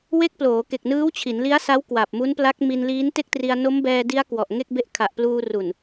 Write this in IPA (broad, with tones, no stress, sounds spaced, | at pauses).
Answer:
w e˦˥ k̚ p l oː˩˦ k e˨˩ k̚ n ɯː˦˥ w t͡ɕʰ i˩˦ n l i˦˥ a̯ s a˦˥ w k w a˨˩ p̚ m u˦˥ n p l a˦˥ k̚ m i˧ n l iː˦˥ n t e˥˩ k̚ t r i˧ a̯ n o˦˥ m b ɛː˧ d i˦˥ a̯ k w ɔ˨˩ ʔ ŋ e˥˩ k̚ b e˦˥ ʔ kʰ a˨˩ ʔ p l uː˧ r u˨˩ n